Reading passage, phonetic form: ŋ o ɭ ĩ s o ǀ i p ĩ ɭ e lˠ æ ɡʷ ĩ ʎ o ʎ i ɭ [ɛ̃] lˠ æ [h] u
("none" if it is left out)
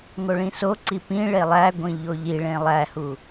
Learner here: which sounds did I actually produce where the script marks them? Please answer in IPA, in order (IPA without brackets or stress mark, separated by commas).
ẽ, h